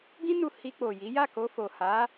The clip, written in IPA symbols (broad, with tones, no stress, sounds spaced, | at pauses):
ɡ ĩ˦ n u˧ h i˧ k͡p o˨ j i˨˦ j a˦˨ k o˧ f o˨ h a˨˦